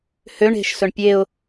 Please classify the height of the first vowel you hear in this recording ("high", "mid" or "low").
mid